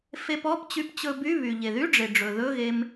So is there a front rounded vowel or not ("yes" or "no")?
yes